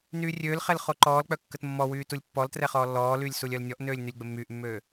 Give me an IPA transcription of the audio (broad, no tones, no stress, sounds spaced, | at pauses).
n yː rʲ øː l χ ɛ l χ o ǃ ɔː l k͡p œ kː ə t mː ɔ w yː t u lʲ pː ɔ l t r ɛ χ ɔː lː ɔː l yː lʲ s u lʲ œ l nʲ ɔ ʔ n øː lʲ n y lʲ ɡ͡b ə mː yː ʔ mː øː